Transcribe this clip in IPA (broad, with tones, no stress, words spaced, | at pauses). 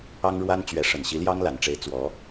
ɑ˥ŋɻwa˥nt͡ɕɥɛ˧˥ʂə˨˩n ɕi˧˥ljɑ˥ŋla˨˩nʈ͡ʂe˧˥ɪ̯ t͡swɔ˧˥